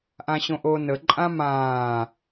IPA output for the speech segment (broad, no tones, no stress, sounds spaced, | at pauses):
ʔ ã ɕ õ ʔ oː n ə ǃʼ ã m ãː